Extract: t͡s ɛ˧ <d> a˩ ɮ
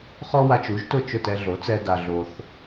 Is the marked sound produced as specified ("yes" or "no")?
yes